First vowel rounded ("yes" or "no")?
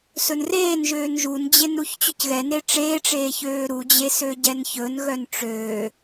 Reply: yes